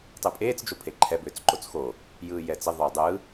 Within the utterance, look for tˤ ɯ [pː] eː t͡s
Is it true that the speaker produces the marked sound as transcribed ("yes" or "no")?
no